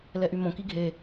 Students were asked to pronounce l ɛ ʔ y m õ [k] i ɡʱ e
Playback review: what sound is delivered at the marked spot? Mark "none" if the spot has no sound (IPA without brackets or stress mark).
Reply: k